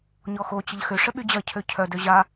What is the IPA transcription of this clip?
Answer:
ɲɔxo t͡ɕəʎxʏ ʂəɓyd͡ʑɐ cʰøcʰœ døʑa

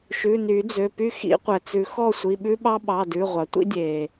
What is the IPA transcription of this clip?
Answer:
ʃʉ˩˧˩ ny˨˩˦d͡zø˩˧˩py˦˨xḭ˨˩˦ qʷɛ˩t͡sʉ˨˩˦ xɔ˦˨sʷi˩˧˩ɓʉ˦ɓɑ˦ ɓɑ˩˧˩dʉ˩˧˩ʁʷɑ˩tʷḭ˦ dʲe˩

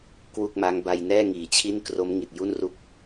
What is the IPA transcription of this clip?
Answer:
kwu˥˩k̚ma˦˥ŋba˧j nɛː˥˩ŋiː˩˦t͡ɕʰi˥˩n kro˦˥mŋi˨˩t̚ju˥˩nru˦˥k̚

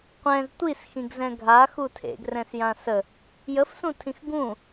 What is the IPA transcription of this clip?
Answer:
qʷɛ̃z tʷisxĩɡzɛ̃ ɡʱaxu tʰḛɡrɛ̃sjã sə | jəfsũtʰĩx ɡũ

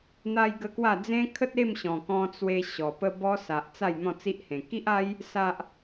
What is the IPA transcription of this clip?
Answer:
n̪a˦jɡə˦kwa˥˧ d͡zẽ˦kʰə˦t̚ e˥˧mɕɔ̃˨˩kɔ̃˧ t͡swe˧ ɕɔ˨˩pə˦ bɔ˧ sa˨ʔt͡sa˥˧j n̪ɔ̃˥˧t͡si˦ʔhẽ˨˩ ki˦ʔa˦j | sa˦ʔ

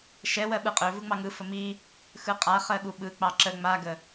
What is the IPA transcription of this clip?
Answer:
ʃɛwɜ ɓɯqʼø vɯŋ͡mɑŋɯ fəmi | xɯqʼa χɜɠuɓɯ k͡pɑǁə ŋ͡maɡə

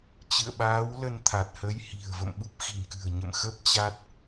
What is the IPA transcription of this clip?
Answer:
t͡ɕɨ̰˧˨ə̯ɓaː˨˦wlə˧n t̪ʰa˨˩t̚hə˨˦jhi̤˨˩ə̯ və̰˧˨mɓu˦˥p̚xi̤˨˩nkɨ̤˨˩ə̯ ɲə̰˧˨m xə˦˥p̚t͡ɕa˦˥t̚

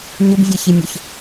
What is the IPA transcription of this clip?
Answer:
ɲʊbvʲeçimʲʊç

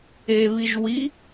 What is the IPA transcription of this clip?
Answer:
eβiʒ wi

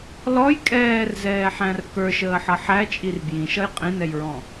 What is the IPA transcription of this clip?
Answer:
lɔj kʼɛːrzɛːħæ̃r kə˞ʃəːħʌ ħæt͡ʃʼir bjĩʃʌj qʼĩnɛjɹɔ̃

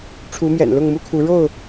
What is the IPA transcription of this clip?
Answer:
ʈ͡ʂʰu˨˦mjɛ̰˨˩n lʊ˥˨ŋmu˦kʰu˨˦ ɻo˥˨ʊ̯

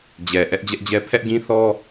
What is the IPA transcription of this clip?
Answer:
d͡ʑɛ˨ ʔɛ˦ʔd͡ʑɛ˦ʔd͡ʑɛ˦ pʰɛ˦ʔɡĩ˦θɔ˦

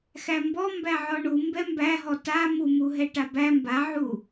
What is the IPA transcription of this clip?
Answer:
xæmbɔ mbæʕɔɳu mbɛmbæɦɔ ta mumuɦɛ ʈabæ mbaʕu

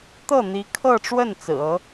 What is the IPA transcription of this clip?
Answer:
t̪ɤ˥˩n̪i˧˥kʰɤ˥˧ʈ͡ʂwə˥˩n t͡sɹ̩˨˩ɤ˧˥

